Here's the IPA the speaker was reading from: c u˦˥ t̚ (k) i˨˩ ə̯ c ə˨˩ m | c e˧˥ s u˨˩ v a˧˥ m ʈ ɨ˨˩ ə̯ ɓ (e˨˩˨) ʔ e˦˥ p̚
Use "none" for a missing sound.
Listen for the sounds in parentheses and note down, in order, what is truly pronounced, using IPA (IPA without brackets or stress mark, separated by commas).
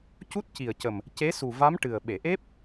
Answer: c, e˨˩˨